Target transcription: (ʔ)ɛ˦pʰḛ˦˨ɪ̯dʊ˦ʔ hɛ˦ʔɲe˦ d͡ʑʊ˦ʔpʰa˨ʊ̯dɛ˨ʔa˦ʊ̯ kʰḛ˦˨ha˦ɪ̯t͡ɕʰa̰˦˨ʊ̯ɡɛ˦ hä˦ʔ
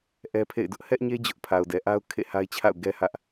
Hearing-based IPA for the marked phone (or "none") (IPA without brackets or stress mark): ʔ